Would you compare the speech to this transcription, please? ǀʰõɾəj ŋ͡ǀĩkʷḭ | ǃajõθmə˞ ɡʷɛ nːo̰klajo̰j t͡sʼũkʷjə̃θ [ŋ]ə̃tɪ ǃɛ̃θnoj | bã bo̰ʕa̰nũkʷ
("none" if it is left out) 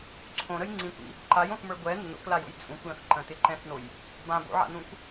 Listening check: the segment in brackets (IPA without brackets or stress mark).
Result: ǃ